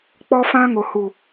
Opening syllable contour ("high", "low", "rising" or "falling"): high